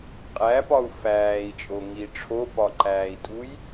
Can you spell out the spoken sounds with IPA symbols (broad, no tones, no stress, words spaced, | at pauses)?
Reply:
qʼæpɒu̯ fæːi̯t͡ʃʼoŋi ʈ͡ʂʰopɒǃæːi̯tʼuj